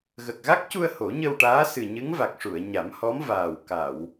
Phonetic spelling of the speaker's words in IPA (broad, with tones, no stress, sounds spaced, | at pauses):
ɣ ə˨˩ k̚ ɣ a˦˥ k̚ c u˧ ə̯ h o˨˩˦ ɲ ə˧ w ʈ aː˧˥ s ɨ˨˩ ɲ ɨ˧˥ ŋ v a˨˩ k̚ ʂ u˨˩˨ ə̯ ɲ a˨˩˦ m h ɔ˧˥ m v aː˨˩ w k a˨˩˨ w